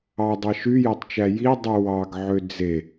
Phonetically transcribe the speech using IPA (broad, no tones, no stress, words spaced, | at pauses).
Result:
ɑdˤɑ ʃyjætˤt͡ʃæ jidˤy wɑɡʕø d͡ze